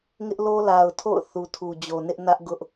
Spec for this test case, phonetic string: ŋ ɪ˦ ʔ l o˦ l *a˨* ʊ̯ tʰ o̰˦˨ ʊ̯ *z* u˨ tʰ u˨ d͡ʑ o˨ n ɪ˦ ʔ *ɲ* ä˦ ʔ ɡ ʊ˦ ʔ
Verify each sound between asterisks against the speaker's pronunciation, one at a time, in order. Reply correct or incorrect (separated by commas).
correct, incorrect, incorrect